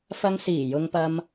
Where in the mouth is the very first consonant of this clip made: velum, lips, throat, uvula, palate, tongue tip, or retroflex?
lips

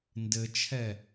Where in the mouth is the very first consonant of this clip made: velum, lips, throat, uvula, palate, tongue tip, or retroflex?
tongue tip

